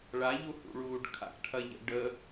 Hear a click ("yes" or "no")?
no